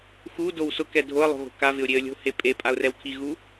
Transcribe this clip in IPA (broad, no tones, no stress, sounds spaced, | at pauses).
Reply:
x u d o w s ʊ k ɛ dʱ o ə̯ lˠ o̤ ɣ o̤ k a v ɪ ʊ̯ ɾʲ e ə̯ lʲ o̤ h e pʼ e pʼ a ʊ̯ r ɛ w kʰ i ɣ u